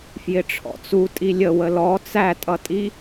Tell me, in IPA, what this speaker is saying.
f j ɪ ʈ͡ʂʰ ɔ̰ t͡s u tʼ i lʲ ə w ə l ɔ t͡s æ tʼ ʌ tʼ i

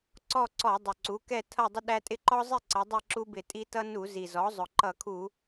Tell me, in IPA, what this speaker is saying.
ǀ ɔ˥˨ ǀ ɔ˧˩˧ dˤ ʊ˨˩ ǀ u˩˥ k ɛ˥˨ tʰ ʌ˥˨ dˤ ɪ˦ ɗ æ˦ tʼ ɪ˦ ǃ ɔ˦ zˤ ɪ˥˨ ǀ ʌ˩˧ dˤ ɛ˥˨ ǁ u˦ b ɪ˧˩˧ tʼ i˦ t ʌ˦ n u˧˩˧ z i˨˩ z ɔ˩˥ zˤ ʊ˨˩ ǃ ʌ˧˩˧ kʰ u˧˩˧

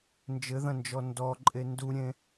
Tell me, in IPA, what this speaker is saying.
n d͡ʒ ɘ ð ɐ̃ n d͡ʒ ɔ n d ɔ ǃʼ e n d u ɾʲ ẽ

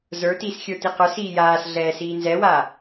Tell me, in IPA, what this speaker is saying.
z ə˞ t iː s xʲ ə˞ t i q ə˞ s iː j aː s ɮ ɛː s iː n z ɛ w aː

